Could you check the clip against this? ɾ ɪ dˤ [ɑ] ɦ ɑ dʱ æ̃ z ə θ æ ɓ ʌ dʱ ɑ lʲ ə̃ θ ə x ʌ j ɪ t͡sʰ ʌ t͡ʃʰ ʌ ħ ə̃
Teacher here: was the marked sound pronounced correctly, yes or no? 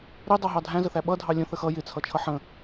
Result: yes